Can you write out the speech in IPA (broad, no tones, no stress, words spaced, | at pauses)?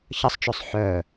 çəsˤt͡ʃɵsˤ ħœ